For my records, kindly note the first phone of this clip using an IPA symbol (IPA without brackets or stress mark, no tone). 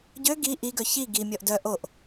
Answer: ɟ